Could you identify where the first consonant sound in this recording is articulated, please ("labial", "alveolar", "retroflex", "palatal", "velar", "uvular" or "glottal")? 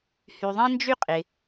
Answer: glottal